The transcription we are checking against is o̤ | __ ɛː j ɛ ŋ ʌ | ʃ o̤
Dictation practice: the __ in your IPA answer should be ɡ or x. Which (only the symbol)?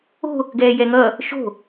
ɡ